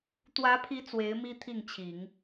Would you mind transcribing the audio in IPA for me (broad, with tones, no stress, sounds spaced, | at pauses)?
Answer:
t̪ w ä˧˥ pʰ i˧˥ t͡s w e˧˥ ɪ̯ m i˥ t̪ʰ i˥˩ ŋ t͡ɕʰ i˨˩˦ ŋ